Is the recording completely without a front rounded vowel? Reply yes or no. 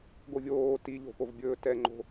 yes